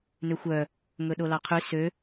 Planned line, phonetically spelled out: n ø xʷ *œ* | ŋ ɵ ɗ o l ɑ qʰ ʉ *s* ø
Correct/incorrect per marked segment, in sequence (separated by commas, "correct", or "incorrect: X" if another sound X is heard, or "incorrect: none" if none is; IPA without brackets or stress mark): correct, correct